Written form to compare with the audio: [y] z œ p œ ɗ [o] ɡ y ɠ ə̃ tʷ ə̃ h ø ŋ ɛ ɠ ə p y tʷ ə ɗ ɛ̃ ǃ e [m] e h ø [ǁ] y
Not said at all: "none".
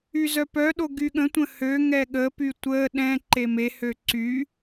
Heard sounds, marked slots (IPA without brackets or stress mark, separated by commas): y, o, m, ǀ